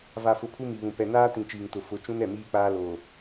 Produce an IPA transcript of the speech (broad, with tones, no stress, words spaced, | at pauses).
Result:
va˨fʊ˨ pʰu˦mi˨βũ˨ pɛ˨naː˦tĩ˨ t͡ʃiː˨ŋtʊ˨ fʊ˨˦ t͡ʃũ˦n ɛ˦˨miː˦ k͡paː˦ lo˨